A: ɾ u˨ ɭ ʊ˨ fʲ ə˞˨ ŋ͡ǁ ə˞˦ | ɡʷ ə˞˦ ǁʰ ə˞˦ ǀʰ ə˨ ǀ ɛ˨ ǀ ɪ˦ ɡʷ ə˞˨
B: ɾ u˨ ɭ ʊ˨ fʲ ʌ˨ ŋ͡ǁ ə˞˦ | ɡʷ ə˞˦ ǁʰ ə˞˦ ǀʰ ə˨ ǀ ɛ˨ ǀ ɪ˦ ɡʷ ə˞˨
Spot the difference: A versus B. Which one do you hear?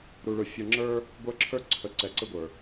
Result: B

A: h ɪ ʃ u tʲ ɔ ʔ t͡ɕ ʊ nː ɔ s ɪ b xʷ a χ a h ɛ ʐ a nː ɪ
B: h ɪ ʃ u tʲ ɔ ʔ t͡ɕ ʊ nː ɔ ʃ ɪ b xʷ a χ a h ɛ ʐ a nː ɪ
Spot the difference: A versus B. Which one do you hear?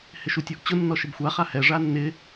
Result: B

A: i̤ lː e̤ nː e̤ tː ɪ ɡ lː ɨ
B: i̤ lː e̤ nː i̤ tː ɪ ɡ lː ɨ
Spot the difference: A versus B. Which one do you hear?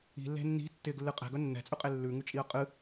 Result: B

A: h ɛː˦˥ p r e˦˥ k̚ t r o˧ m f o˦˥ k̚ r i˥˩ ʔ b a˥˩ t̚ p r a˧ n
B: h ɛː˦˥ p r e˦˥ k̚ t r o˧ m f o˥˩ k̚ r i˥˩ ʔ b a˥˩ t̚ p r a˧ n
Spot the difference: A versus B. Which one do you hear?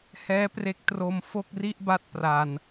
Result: B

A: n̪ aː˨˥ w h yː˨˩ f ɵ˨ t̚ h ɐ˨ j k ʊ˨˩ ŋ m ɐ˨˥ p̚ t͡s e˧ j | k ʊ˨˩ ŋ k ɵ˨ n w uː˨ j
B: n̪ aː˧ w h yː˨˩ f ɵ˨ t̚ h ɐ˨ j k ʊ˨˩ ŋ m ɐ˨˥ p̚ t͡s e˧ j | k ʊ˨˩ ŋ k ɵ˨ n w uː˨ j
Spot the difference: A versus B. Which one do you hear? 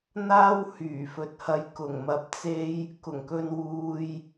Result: B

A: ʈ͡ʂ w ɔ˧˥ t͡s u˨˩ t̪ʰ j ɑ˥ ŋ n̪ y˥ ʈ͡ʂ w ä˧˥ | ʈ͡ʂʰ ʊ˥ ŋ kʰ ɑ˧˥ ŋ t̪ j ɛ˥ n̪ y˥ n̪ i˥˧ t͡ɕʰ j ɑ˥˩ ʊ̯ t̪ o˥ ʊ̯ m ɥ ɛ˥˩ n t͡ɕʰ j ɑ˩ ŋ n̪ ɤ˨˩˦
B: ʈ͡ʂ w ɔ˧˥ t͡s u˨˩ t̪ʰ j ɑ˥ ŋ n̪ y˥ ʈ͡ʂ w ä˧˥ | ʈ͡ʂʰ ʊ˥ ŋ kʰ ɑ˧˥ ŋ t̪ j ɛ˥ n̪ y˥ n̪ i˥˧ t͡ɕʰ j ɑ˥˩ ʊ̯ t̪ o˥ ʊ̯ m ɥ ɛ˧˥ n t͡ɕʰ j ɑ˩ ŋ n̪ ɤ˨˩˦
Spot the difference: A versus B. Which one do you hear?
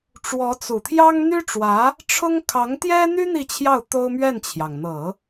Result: A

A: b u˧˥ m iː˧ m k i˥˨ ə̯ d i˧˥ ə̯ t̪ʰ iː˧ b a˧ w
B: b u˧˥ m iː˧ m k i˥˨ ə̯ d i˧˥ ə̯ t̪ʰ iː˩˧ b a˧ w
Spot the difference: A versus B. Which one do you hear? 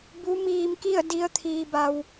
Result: A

